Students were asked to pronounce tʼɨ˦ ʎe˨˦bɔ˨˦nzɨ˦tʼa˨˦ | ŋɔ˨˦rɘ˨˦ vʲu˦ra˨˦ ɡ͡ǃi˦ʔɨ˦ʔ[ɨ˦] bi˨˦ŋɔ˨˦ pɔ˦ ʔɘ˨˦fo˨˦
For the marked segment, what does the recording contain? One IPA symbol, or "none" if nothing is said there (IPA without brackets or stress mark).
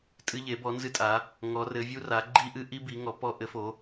i˦